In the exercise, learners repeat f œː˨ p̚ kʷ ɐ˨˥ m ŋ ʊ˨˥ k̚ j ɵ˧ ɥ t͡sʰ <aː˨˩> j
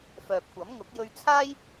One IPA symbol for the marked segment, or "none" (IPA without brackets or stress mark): aː˥